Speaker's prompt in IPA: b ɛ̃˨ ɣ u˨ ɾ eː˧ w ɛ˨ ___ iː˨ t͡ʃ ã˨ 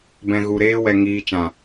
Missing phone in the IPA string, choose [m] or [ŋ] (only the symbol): ŋ